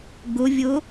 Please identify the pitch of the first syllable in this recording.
rising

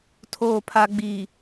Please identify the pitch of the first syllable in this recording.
low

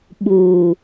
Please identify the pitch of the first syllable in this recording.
low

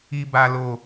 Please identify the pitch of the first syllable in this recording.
low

